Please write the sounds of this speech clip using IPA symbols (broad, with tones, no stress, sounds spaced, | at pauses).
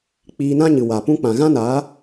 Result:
k͡p iː˧ n ã˦ ɲ ɨ˨ w a˨ p ũ˧ k͡p ã˨ ɣ ã˦ n aː˨˦